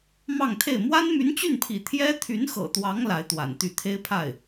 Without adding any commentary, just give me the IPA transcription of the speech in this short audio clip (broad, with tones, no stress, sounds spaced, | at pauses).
m ɑ˥˧ ŋ t̪ʰ e˥˩ ɪ̯ m w a˥ n m y˧˥ n t͡ɕ y˥˩ n pʰ ḭ˨˩ t̪ʰ j ɛ˥ t̪ʰ y˧˥ n x ɤ̰˨˩ t̪ w ɑ˧˥ ŋ l a˧˥ ɪ̯ t̪ w a̰˨˩ n t̪ y˥˩ t̪ʰ e˥ ɪ̯ pʰ a˥˩ ɪ̯